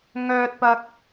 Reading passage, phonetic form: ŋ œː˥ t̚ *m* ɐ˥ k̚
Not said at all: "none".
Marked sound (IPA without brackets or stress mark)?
p